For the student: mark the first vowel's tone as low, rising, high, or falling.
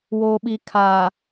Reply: low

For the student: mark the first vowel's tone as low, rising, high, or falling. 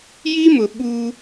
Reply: high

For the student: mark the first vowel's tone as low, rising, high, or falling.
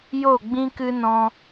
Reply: falling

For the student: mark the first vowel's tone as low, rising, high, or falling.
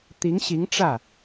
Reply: rising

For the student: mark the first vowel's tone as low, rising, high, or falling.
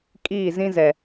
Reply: falling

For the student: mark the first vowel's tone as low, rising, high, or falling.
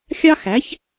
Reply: high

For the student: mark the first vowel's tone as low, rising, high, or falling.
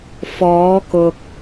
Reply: rising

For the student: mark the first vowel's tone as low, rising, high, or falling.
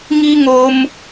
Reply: high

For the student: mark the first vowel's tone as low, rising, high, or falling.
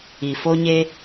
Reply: low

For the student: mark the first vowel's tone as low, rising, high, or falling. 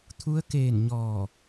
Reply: rising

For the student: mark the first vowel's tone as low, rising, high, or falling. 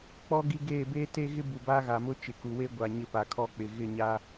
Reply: high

